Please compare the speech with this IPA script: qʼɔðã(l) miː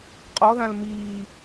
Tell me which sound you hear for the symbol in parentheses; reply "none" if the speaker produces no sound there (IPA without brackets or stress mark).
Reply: l